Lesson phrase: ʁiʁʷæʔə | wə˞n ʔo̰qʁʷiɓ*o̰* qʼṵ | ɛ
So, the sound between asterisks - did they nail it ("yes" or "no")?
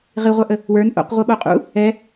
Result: no